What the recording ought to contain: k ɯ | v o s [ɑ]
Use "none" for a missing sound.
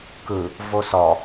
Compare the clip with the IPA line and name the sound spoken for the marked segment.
ɔ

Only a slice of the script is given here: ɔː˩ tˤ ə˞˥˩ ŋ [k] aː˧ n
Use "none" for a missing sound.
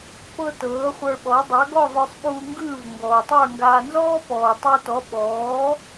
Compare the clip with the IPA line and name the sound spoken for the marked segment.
ɡ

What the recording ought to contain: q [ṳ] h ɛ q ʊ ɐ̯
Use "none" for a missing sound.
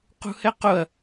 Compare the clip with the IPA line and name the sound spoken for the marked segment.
ṳ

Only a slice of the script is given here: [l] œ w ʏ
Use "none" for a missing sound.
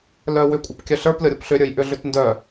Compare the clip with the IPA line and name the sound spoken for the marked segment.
l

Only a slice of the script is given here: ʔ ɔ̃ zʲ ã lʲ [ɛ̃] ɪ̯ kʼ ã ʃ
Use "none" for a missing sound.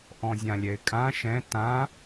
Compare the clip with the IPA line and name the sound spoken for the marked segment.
ɛ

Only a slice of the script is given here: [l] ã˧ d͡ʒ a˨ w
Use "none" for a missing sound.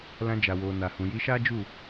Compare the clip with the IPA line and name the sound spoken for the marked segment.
l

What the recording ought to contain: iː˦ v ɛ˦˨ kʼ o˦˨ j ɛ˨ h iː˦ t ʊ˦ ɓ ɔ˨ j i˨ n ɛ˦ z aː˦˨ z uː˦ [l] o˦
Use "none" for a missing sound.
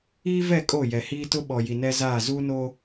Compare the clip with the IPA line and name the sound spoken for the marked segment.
n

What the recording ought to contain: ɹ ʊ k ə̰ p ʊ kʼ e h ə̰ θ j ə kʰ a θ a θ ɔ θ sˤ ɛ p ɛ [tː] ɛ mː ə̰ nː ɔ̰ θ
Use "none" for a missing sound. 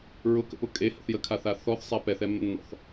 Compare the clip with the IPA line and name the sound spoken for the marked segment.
θ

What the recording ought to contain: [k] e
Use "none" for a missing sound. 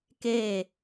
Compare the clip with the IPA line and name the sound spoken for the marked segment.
k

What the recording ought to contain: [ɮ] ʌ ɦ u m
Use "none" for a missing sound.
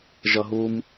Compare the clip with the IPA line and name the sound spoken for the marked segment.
ʒ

